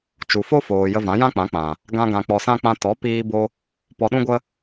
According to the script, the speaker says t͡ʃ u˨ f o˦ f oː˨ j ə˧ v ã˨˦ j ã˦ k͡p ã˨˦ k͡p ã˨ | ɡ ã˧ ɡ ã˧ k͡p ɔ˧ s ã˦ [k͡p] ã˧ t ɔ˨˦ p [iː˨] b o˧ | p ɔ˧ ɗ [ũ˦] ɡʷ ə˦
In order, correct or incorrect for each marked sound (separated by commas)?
correct, incorrect, correct